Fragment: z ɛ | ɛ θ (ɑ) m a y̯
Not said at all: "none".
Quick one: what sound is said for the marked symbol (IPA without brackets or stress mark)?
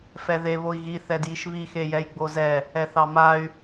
ɑ